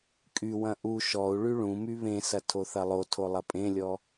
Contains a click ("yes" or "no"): no